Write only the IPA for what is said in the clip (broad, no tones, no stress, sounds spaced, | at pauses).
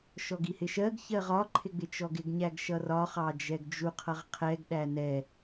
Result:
ʃ ɔ ɡ i h ɪ ʃ ɜ ɡ ç ɜ ʁ ɒ ǃʰ ɪ ɡ͡b ɪ t͡ʃ ɔ ɡ ɪ ɡ ɲ æ ɡ ʃ ʌ r ɒ χ ɑ d͡ʒ ɛ ɡ d͡ʒ u qʰ ʌ ʁ qʰ ɛ ɡ ɗ æ n ɛ